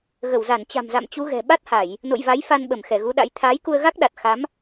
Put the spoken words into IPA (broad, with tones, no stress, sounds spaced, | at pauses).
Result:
ɣ ə˧˩ w z a˧˩ n t͡ɕ a̤˨˩ m z a̰˧˨ m t͡ɕ u˨˦ ɣ ɛ̤˨˩ ɓ a˦˥ t̚ h a˧˩˨ j | n o̰˧˨ j v a˨˦ j f a˧ n ɓ ə˧˩ m x ɛ˧˩ ɣ u˨˦ ɗ a̰˧˥ j t̪ʰ aː˨˦ j k u˧ ə̯ ɣ a˦˥ k̚ ɗ a˨˩ t̚ x a˨˦ m